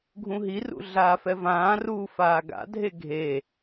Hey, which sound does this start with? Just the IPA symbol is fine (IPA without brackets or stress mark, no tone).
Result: ɡʱ